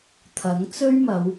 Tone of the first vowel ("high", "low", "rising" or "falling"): rising